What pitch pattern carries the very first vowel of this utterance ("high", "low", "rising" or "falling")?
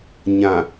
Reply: low